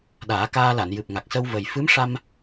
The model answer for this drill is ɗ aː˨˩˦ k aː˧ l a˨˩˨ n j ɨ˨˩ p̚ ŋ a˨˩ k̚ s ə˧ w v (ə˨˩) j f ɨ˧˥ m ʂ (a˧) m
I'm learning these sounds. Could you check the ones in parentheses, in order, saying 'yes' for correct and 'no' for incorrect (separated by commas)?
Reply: yes, yes